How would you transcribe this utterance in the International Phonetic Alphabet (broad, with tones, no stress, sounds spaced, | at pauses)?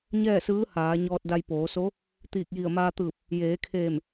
ɲ ɛː˥˨ s ɯː˧˥ h aː˩˧ ɲ ɔː˧ t̚ d a˧ j p oː˩˧ s o˧˥ | t̪ iː˧˩ k̚ j i˧˩ ə̯ m aː˧ t̪ ɯː˧˩ p̚ | j eː˩˧ kʰ eː˧˩ m